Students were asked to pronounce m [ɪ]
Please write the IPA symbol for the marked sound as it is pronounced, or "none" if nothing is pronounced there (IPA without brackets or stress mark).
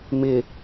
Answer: ɪ